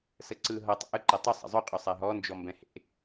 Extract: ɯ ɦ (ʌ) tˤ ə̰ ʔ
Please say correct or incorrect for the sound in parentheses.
correct